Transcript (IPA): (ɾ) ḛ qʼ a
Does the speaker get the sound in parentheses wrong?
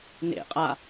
yes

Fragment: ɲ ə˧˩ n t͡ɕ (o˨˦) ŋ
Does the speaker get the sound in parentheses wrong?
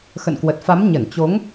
no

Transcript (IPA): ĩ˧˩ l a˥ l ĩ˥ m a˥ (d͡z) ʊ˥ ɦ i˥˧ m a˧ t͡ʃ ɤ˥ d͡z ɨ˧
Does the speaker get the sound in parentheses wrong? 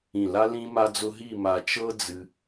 no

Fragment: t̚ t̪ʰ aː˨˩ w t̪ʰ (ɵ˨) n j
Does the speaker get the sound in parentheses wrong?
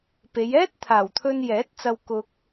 yes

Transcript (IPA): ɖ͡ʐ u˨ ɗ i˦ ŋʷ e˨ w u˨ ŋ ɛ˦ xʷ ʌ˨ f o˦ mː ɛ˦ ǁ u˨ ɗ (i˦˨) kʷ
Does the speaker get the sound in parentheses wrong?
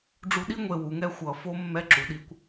no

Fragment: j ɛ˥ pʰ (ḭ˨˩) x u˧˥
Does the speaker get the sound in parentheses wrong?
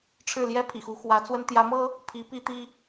no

